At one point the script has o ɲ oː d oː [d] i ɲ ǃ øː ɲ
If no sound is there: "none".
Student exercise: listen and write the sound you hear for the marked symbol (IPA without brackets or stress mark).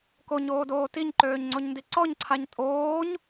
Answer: t